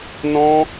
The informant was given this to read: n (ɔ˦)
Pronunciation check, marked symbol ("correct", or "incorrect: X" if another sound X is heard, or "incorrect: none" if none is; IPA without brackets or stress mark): incorrect: ɔ̃˦